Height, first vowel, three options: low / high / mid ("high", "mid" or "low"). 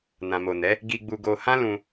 low